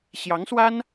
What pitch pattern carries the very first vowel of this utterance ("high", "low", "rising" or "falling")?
rising